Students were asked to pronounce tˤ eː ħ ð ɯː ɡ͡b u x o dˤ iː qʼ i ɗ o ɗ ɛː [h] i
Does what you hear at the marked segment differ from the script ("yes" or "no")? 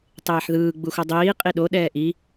yes